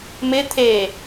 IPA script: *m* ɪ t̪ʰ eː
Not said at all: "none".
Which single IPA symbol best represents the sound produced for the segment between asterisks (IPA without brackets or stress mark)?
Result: m